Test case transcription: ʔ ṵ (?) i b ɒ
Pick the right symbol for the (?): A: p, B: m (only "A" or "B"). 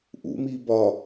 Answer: B